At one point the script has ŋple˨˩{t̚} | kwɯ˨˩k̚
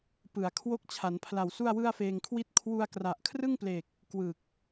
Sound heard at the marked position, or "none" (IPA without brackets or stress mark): k̚